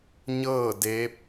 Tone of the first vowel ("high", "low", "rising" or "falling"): falling